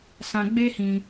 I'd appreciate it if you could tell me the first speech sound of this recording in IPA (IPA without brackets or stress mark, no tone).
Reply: s